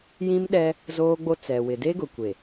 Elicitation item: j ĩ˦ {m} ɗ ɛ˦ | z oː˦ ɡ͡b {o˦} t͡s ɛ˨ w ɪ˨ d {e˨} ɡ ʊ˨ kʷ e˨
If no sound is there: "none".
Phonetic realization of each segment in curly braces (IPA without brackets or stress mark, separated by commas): m, o˦, e˦